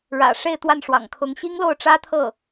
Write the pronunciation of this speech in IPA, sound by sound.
ɻ ä̰˨˩ ʂ e˥˧ ɪ̯ t̪ w a˥˩ n ʂ w ɑ̰˨˩ ŋ kʰ ʊ˧˥ ŋ ɕ i˥ ŋ l o˥˩ ʊ̯ ʈ͡ʂ ä˥ t̪ʰ ɤ˥˩

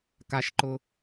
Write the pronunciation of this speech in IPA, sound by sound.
k a ʃ ǃ ʊ

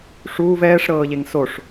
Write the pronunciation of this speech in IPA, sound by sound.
ʂ uː v ɛː ʂ ɾ ɤː ʎ e ŋ s o ʂ

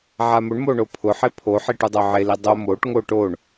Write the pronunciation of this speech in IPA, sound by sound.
ʕ a m ʊ ɳ m o ɳ o pʰ ʊ ħ e pʰ o ħ i ʈ u dˤ o ʕ e l i dˤ o m o ʈ ŋ o ʈ o ɳ

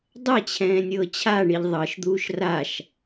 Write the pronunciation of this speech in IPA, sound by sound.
dˤ ɛ t͡ɕʰ ɛ̃ː nʲ ɤː t͡ɕʰ a ɳ i ʎ ðˤ ɤ ʃ d̪ uː ʃ r a ʃ

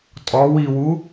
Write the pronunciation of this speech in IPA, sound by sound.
tʼ ɔ w i w u

